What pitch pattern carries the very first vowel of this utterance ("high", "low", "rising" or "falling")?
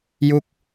falling